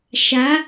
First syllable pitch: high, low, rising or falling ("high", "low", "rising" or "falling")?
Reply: rising